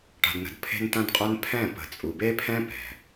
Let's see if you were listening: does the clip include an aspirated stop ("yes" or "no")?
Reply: yes